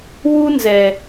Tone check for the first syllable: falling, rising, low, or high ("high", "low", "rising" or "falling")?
high